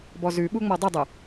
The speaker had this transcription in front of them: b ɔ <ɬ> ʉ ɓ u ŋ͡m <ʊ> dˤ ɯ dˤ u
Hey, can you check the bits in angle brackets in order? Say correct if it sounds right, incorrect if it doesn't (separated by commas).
incorrect, incorrect